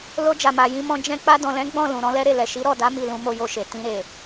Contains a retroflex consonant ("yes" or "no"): no